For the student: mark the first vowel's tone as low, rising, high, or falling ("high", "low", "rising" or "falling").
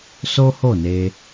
high